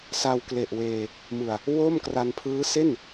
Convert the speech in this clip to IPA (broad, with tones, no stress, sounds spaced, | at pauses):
s a˧ w k l e˨˩ ʔ w eː˧ | m ɯ˨˩ a̯ | w o˥˩ m k r a˧ n pʰ ɯː˦˥ s e˥˩ n